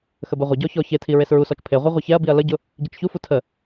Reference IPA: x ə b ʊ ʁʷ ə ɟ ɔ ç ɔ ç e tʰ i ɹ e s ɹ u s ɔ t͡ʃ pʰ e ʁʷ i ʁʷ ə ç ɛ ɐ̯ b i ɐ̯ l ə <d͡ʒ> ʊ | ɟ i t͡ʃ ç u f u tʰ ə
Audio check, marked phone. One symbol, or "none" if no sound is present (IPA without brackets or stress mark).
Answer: ɟ